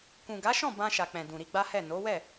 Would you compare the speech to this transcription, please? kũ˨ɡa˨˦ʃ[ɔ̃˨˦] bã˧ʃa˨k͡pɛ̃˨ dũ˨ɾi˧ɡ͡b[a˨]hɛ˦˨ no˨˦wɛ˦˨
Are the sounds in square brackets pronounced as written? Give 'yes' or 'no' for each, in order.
no, no

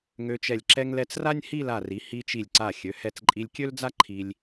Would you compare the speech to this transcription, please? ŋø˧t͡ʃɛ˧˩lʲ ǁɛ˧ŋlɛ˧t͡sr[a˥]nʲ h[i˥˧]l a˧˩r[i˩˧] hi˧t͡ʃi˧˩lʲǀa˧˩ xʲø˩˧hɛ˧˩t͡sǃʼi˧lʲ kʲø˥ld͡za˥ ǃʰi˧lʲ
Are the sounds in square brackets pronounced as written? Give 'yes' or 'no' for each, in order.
yes, yes, yes

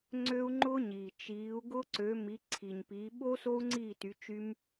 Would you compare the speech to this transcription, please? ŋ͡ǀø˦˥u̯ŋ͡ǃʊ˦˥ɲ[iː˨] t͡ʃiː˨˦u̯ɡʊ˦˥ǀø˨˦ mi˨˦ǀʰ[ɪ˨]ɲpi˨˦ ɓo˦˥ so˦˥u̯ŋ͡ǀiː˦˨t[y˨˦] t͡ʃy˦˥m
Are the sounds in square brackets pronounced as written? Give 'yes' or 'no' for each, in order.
yes, no, yes

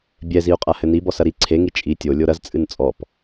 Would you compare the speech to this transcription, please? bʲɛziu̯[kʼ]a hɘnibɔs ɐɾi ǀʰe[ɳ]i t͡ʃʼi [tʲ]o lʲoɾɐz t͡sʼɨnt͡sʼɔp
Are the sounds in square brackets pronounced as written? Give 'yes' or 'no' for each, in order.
no, no, yes

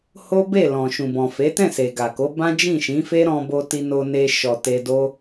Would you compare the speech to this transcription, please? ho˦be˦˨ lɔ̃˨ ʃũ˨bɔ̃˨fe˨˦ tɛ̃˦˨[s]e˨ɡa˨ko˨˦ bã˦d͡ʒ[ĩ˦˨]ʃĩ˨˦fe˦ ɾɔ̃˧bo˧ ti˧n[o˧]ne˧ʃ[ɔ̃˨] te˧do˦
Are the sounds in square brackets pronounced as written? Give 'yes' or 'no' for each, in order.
yes, yes, yes, no

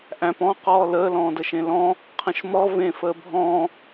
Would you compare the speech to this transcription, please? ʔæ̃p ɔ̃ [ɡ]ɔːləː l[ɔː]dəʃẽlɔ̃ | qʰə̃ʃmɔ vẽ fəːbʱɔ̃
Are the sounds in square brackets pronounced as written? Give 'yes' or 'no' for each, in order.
no, no

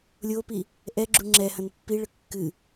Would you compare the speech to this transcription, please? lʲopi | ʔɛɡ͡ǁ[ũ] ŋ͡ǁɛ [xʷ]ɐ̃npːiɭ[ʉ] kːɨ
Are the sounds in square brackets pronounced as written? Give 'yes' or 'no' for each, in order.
no, no, no

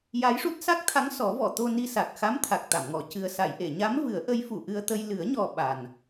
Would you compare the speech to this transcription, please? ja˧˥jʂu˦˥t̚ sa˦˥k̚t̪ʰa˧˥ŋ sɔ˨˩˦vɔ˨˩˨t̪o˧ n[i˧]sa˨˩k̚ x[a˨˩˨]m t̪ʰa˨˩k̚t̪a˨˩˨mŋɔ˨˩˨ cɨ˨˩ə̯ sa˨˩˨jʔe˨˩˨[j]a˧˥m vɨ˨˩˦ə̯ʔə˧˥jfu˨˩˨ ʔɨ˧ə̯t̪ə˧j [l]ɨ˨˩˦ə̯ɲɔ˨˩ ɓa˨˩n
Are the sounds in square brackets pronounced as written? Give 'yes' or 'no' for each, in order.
yes, no, no, yes

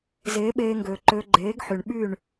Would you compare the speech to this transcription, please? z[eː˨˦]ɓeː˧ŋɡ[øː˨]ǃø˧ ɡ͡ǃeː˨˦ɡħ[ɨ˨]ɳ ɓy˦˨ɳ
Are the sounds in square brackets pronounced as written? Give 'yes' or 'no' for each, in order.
yes, yes, no

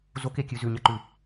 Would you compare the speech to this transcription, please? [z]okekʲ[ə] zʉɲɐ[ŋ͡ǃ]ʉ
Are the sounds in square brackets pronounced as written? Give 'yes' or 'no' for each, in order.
yes, no, no

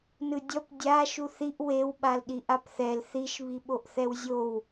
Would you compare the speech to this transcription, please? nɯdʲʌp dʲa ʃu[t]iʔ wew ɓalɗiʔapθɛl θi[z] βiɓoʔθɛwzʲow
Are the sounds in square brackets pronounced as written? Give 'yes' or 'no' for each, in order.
no, no

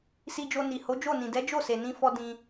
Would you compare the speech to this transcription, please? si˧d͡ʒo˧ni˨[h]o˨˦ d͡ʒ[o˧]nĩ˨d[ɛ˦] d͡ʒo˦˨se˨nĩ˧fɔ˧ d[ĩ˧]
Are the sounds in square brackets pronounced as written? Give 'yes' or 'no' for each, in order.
yes, no, no, yes

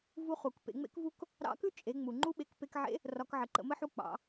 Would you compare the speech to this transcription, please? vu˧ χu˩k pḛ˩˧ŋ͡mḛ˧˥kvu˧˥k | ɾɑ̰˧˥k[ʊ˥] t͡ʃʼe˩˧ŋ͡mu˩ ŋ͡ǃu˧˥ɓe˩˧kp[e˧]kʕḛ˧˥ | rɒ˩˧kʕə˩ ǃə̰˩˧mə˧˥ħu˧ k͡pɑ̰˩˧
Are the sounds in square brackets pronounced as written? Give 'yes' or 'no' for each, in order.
no, yes

